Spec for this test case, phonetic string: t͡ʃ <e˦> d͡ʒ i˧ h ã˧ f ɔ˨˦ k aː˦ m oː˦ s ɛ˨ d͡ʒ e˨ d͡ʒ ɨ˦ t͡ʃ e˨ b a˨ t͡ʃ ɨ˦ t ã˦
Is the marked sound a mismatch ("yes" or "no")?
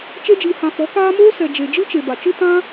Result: no